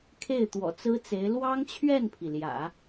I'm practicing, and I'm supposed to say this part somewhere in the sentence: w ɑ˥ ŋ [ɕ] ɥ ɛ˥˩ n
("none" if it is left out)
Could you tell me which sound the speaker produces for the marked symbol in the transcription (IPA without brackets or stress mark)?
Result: t͡ɕʰ